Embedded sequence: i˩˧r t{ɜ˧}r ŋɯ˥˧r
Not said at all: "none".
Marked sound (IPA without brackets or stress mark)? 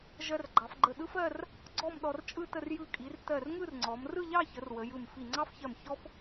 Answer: ɜ˧˩